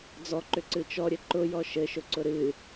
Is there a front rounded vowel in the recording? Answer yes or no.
yes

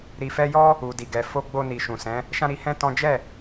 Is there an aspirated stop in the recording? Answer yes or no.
no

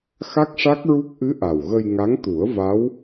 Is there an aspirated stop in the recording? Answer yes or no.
no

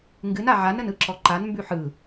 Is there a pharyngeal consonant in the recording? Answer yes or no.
yes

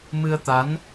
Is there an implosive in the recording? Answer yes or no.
no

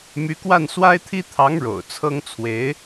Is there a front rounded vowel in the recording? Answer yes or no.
yes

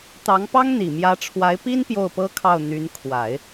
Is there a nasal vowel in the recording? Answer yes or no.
no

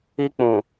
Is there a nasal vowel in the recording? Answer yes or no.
yes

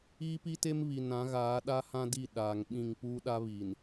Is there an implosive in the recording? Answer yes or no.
yes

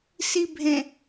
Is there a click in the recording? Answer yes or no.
no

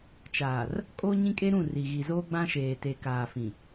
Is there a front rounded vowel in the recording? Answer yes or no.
no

